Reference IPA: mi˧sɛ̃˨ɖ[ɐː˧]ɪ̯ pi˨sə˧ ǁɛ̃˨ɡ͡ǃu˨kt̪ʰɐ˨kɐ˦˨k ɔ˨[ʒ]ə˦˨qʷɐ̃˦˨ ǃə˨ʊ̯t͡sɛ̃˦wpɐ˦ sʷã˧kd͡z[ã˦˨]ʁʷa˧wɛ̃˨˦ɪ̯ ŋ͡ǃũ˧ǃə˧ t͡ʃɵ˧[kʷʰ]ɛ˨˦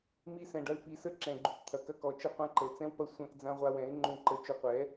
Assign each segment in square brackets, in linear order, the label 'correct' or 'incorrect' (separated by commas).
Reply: incorrect, incorrect, incorrect, incorrect